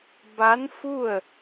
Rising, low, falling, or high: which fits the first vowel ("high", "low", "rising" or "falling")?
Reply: rising